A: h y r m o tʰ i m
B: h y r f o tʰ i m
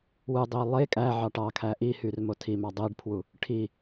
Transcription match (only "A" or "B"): A